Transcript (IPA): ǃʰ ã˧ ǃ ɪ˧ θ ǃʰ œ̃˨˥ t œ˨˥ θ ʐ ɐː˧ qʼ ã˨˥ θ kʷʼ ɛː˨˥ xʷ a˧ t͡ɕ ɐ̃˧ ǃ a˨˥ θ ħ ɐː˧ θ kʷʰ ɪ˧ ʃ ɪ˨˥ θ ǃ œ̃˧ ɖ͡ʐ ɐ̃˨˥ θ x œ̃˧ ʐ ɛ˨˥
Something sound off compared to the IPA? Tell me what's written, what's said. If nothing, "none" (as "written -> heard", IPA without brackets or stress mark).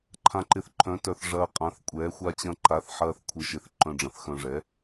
none